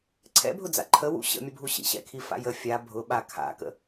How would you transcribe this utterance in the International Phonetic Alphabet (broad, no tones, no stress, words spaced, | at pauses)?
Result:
ǀʰɛ̰bʱʊd͡za̰ ǃʰə wṵ ɕə̰mʲəbʱu ɕḭɕɛ̰kʰifa̰ jə fʲa bʱʊɓa kʰa̰kə̰